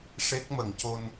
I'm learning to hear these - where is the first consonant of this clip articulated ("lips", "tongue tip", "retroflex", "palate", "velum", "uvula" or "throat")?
retroflex